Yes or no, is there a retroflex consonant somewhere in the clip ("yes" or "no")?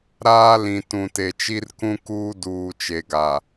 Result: no